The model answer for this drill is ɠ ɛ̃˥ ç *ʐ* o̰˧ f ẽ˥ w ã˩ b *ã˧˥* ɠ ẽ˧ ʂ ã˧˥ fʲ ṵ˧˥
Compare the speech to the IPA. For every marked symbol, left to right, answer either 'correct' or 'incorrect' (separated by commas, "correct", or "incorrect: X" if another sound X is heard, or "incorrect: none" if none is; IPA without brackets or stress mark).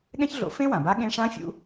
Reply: incorrect: ɮ, incorrect: a˧˥